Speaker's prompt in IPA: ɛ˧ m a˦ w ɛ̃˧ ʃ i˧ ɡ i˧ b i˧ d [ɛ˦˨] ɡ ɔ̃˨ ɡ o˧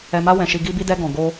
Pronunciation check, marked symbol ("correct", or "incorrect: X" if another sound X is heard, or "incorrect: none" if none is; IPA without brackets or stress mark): incorrect: ɛ˧